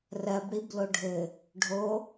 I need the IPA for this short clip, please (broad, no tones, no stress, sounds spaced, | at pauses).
r ɜ b ɽ i b l o ɖʱ ɘ | ɖʱ o